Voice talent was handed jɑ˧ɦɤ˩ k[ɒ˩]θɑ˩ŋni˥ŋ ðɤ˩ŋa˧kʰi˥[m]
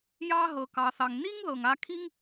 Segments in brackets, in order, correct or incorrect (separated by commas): incorrect, incorrect